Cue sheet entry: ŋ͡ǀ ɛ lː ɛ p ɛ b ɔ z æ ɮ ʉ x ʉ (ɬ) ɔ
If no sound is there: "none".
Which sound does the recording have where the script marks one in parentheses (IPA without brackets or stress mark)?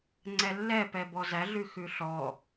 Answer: ɬ